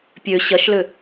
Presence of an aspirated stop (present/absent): absent